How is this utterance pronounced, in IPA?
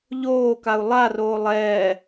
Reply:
ʎ oː k a u̯ lˠ a r oː lˠ ɛː

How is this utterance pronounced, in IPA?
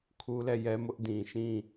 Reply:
kʰ u˦ l ɛ˦˨ j ɛ˦ m ʊ˦ ʔ d ĩ˨ ʃ ĩ˦˨

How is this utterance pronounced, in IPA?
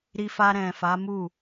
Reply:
ɾ i˧ f a˧ ɾ ɛ̃˨ f a˨˦ m u˦˨

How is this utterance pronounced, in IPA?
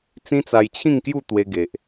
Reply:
t͡s ĩ˦ t͡s a˧ j t͡ɕʰ ĩ˥˧ ŋ k j u˥˧ t̪ w e˧ ɡ e˨ ʔ

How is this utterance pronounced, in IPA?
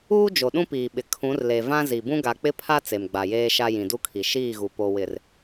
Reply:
uː˦ d͡ʒ o˨ ɗ ũ˦ p iː˨ ɓ ɪ˨ kʰ ũ˨˦ r l e˨ v ã˦ z i˨ b ũ˦ ɡ a˨ k͡p ɪ˦ pʰ a˦ t͡s e˨ m ɡ͡b a˨ j eː˦ ʃ a˦ j ĩ˨ d u˦ kʰ i˨ ʃ iː˦˨ ɣ u˨ p o˨ w ɪ˨ r

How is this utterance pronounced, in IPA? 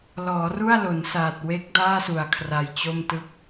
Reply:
l ɔː˩˦ r u˥˩ a̯ l o˩˦ n s aː˨˩ t̚ w e˦˥ k̚ d aː˥˩ s u˨˩ a̯ kʰ r a˧ j t͡ɕ o˥˩ m t ɯ˥˩ k̚

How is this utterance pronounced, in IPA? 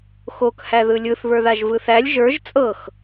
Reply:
x o k h æ ð ɯ lʲ ɯ θ β ə˞ ð a ʒ v ɯ θ æ lʲ ʒ ə˞ ʒ t͡sʼ ɤ x

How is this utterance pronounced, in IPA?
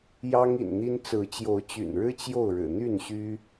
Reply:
j ɑ˦ ŋ ḭ˨˩ n n̪ i˦ n t͡s ɹ̩˨˦ t͡ɕ j o˨˦ ʊ̯ t͡ɕ y̰˨˩ n ɻ ɻ̩˦ t͡ɕ j o˥˨ ʊ̯ ɻ ɻ̩˨˩ n̪ y˥˨ n ɕ y˦

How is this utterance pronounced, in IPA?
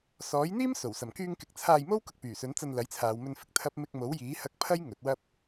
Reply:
s ɔː˨˥ j n̪ iː˥ m s o˨˩ w s ɐ˨˩ m k yː˧ ŋ k ɪ˨ k̚ t͡sʰ aː˧ j m o˥ w k ʊ˧ k̚ p yː˨˩ s ɵ˨˥ n t͡s ɐ˧ n l ɐ˨˥ j t͡sʰ aː˨ w m ɵ˧ n f ɪ˨ k̚ t̪ʰ ɐ˥ p̚ m ɪ˧ k̚ m o˨˥ w j iː˨˥ h ɐ˧ k̚ pʰ ɐ˥ j ŋ ɵ˨˥ t̚ w ɐ˥ p̚

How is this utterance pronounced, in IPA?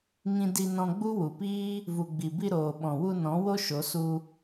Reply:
ŋ ĩ˧ d i˧ n ɔ̃˧ ɡ͡b u˦ w u˨ p iː˦ | v u˨ ɡ͡b i˨ b i˧ ɾ oː˨ ɓ ɔ̃˨ w u˧ n ɔ̃˨˦ w o˦ ʃ o˨˦ s u˧

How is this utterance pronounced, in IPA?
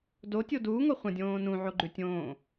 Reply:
d o tʲ o d uː ŋ o χʷ ɐ̃ dʲ õː n ũ ʕ o ɡ͡ǃ ʉ tʲ õː

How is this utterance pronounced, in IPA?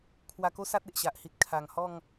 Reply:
kʰ w a˧ k o˦ s a˦ t̚ e˨ ʔ ɕ a˨ ʔ h i˨ t̚ kʰ a˨˩ ŋ h ɔ˥˧ ŋ

